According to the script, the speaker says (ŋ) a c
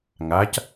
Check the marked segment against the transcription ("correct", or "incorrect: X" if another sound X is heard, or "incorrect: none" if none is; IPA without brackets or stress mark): correct